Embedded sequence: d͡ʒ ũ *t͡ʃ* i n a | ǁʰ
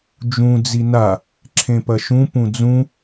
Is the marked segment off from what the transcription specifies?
yes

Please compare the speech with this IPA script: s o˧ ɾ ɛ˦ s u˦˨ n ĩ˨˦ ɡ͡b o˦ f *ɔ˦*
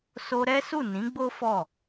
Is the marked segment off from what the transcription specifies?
yes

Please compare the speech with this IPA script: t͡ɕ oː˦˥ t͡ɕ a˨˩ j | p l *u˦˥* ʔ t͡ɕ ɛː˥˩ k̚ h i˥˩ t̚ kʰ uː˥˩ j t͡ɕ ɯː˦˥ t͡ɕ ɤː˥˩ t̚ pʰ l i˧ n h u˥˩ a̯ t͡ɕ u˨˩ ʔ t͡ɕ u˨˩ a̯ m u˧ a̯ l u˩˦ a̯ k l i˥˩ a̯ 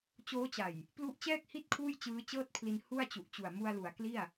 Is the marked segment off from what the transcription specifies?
no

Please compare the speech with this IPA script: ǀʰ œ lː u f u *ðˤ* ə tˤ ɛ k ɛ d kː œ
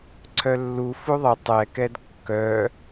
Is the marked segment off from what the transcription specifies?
no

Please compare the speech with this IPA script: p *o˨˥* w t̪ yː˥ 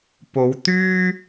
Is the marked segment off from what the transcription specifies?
yes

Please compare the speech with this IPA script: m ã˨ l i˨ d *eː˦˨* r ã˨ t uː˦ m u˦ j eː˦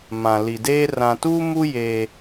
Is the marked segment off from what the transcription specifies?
yes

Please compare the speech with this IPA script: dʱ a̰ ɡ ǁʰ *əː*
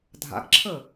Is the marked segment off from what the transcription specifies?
no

